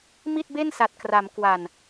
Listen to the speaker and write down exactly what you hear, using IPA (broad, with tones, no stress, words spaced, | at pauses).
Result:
mi˥˩t̚be˥˩nsa˨˩t̚kra˩˦m kwa˨˩n